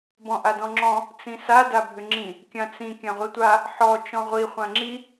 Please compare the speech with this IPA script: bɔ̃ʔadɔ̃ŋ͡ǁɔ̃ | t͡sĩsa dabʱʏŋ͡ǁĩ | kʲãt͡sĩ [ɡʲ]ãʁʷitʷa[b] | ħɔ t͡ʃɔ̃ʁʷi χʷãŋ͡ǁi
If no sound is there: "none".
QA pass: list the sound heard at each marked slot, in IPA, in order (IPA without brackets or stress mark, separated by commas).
kʲ, none